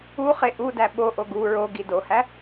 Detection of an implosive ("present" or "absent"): present